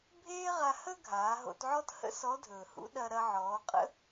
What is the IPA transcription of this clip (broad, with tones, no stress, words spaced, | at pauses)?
bʱeː˥ʁa˧hə˥ ɡʱaː˩˧ɦo̰˧tʕɔ˥thə̰˥ sɔ˧˥dʱɵː˩hṵ˥ ɗɐ˧ɾɐ˧ʕɔː˩˧qʼə̰˥